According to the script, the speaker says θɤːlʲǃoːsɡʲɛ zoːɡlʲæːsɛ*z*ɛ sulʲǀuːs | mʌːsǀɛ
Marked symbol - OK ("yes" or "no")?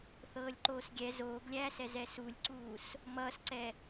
yes